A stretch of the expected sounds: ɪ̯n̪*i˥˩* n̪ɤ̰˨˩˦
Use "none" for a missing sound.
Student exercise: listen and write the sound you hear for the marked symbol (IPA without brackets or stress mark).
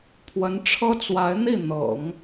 i˥˩